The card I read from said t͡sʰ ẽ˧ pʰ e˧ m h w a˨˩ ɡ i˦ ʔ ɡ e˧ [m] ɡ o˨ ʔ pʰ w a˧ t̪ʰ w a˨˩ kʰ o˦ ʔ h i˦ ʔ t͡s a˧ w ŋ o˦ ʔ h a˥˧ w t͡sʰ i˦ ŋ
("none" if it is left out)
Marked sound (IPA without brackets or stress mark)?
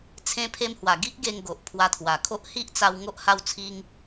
ŋ